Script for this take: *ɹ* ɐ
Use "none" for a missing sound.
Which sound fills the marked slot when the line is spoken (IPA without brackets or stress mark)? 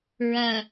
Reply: ɹ